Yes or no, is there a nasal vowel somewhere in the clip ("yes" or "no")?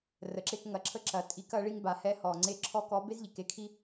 no